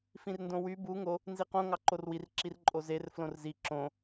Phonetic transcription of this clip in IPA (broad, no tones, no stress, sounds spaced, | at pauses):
f ĩ r n d õ w y b u ŋ o | n z i q õ ŋ ɑ ǃ o r w i r ǁ i r ǃʼ o z e r f l õ r z i ǁ õ